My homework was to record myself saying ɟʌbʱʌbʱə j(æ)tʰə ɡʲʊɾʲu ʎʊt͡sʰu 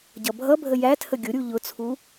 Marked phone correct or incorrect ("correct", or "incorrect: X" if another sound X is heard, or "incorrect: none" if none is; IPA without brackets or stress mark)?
correct